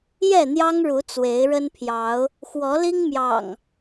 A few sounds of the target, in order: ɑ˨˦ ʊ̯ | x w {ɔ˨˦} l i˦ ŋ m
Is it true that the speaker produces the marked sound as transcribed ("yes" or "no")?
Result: yes